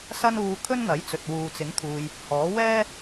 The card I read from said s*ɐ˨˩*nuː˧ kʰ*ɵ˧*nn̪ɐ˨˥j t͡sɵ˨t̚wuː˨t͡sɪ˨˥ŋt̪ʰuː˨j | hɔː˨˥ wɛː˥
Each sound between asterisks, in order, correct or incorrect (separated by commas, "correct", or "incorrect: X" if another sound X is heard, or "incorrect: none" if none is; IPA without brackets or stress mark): incorrect: ɐ˥, incorrect: ɵ˥